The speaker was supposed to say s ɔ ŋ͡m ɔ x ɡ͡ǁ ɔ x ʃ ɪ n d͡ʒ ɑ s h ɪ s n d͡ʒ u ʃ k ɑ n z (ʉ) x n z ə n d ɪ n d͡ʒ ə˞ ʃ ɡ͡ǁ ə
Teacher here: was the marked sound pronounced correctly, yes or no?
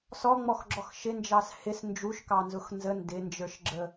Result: no